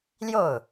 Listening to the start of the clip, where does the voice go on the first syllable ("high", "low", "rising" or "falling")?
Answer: falling